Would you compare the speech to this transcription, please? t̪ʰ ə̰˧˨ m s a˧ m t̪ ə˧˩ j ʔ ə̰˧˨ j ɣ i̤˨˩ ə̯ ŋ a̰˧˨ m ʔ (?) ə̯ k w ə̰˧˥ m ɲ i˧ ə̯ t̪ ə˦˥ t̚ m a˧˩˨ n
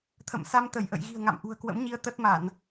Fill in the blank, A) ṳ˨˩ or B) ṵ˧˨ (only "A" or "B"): A